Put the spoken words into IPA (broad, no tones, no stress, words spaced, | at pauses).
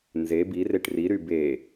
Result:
nze bireʈ riɾy be